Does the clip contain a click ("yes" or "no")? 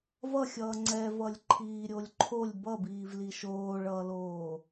yes